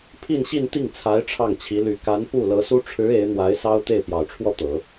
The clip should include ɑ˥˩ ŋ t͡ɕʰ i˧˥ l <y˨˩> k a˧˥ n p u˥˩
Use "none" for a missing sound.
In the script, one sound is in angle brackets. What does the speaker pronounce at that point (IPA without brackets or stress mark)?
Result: y˨˩